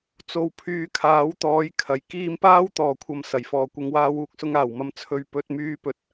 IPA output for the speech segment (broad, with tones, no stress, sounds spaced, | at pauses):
t͡s o˨ w pʰ yː˨˧ kʰ aː˨˥ w t̪ ɔː˨˥ j kʰ ɐ˨˩ j k iː˧ m p aː˥ w t̪ ɔː˨˩ kʷʰ ɐ˨ m s ɐ˨˩ j f ɔː˨ kʷ ɪ˧ ŋ w aː˧ w uː˧ k̚ s ʊ˧ ŋ aː˨˩ w m ɐ˨˧ m t͡sʰ ɵ˨ ɥ p ɵ˧ t̚ m yː˧ p ɵ˨ t̚